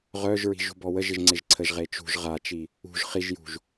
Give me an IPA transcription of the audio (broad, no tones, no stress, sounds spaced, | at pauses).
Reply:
ʁ œ ʒ ɹ i̤ ʒ ṳ b ɔ w ə ʒ ɪ ʒ ŋ͡ǀ ɪ ʒ ǀʰ ə ʒ ʁ e t͡ʃ ṳ ʒ ʁ a t͡ʃ i | ṳ ʒ χ i ʒ j ṳ ʒ